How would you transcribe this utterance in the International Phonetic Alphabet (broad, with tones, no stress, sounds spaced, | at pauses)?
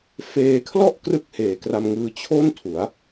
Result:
f eː˧ kʰ l ɔ˥˩ ʔ k r ɯ˥˩ k̚ h eː˩˦ k r a˧ m ŋ ɯː˧ t͡ɕʰ o˥˩ n tʰ u˩˦ a̯